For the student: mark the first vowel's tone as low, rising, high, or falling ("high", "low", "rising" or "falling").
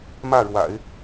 falling